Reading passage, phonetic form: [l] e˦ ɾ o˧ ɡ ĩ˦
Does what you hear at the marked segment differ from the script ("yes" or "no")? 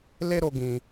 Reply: no